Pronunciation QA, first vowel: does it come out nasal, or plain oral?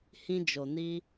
nasal